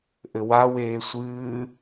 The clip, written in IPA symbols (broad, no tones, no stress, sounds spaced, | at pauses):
ʔ ɘ w a w eː sʷ ɨː